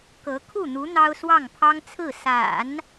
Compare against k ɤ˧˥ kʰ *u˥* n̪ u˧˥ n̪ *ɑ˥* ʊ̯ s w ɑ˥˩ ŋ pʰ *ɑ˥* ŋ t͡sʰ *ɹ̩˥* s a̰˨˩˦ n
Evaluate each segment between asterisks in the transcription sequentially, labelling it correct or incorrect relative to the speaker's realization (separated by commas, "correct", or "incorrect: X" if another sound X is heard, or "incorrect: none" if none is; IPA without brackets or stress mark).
incorrect: u˥˩, correct, correct, incorrect: ɹ̩˥˩